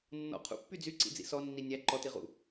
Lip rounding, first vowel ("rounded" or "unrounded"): rounded